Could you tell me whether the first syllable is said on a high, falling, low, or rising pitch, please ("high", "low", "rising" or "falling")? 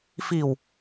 low